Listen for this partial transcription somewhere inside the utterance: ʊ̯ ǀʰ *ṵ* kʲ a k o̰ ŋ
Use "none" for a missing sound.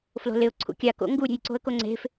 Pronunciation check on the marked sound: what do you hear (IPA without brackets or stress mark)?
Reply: ṵ